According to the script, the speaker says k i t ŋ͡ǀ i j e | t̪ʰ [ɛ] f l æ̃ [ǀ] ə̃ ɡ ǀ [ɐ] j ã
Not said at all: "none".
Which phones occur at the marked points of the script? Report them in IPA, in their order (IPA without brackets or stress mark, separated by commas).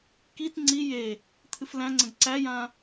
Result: ɨ, ŋ͡ǀ, æ